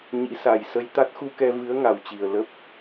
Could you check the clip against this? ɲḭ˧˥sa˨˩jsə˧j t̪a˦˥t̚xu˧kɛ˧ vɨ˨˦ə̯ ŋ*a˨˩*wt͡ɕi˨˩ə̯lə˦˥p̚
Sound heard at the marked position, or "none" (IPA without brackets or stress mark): a˨˩